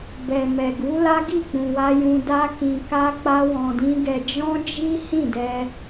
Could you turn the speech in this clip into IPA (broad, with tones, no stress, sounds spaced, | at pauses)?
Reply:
b ɛ˨ m ɛ˨ ɡ u˨˦ l a˦ ɡ i˦˨ k͡p ũ˨ w a˧ j ũ˧ d a˦ k ĩ˧ k a˦ k͡p a˦ w ɔ̃˧ d ĩ˦ ɡ ɛ˧ d͡ʒ ɔ̃˦ d͡ʒ i˦ h ĩ˦˨ d ɛ˧